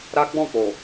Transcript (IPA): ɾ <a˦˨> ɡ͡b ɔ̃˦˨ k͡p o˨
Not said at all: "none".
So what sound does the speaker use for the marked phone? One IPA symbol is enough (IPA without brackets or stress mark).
a˦